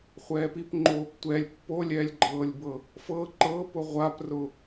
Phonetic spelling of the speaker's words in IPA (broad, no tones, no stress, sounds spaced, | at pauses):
χʷ ɛː p i p ŋ͡ǃ oː p tʷ ɛ lʲ pː o lʲ ɛː lʲ ɡ͡ǃ ɤː lʲ b ɤ | f ɤ ǃ ɤ p ʊ ʁʷ a p r ʊ